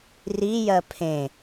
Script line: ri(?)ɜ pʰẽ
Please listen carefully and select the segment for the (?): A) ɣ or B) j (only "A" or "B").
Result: B